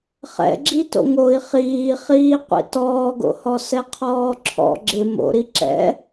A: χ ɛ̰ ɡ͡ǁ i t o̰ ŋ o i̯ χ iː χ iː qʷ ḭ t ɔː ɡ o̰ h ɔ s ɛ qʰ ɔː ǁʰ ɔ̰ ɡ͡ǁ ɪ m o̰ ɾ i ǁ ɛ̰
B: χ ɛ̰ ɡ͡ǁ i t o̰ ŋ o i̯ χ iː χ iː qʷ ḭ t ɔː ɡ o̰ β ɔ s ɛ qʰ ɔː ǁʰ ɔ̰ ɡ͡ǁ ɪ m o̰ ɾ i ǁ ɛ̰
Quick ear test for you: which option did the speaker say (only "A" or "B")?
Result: A